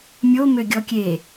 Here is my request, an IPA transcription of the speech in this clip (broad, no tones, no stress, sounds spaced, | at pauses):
mʲ o m ø ɡʲ ɔ kʲ e